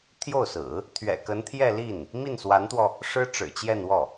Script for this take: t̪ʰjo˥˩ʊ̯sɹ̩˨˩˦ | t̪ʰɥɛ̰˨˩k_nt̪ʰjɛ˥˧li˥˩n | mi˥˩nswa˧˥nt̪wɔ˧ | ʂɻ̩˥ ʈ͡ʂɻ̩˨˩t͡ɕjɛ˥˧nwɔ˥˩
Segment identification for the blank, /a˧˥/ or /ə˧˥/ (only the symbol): ə˧˥